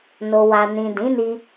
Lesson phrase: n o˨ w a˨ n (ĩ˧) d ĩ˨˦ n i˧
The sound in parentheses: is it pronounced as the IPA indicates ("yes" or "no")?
no